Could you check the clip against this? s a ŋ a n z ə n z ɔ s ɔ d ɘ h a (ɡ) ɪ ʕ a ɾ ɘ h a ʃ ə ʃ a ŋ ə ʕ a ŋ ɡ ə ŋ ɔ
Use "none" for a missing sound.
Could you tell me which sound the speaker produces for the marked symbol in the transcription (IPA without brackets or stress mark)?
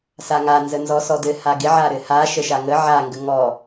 ɡ